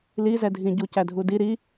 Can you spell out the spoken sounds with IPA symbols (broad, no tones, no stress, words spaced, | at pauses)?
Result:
lizɛdʱĩ ɟucædʱudi ɾi